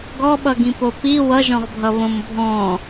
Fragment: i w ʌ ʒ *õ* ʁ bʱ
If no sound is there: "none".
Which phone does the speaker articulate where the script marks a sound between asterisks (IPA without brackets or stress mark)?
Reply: ɔ̃